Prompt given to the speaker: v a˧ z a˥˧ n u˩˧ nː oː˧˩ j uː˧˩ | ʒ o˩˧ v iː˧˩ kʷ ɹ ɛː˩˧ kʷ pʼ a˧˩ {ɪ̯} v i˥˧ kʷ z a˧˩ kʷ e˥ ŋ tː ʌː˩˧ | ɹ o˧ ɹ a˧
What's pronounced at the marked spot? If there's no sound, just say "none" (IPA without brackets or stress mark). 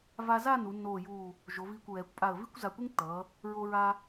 ə̯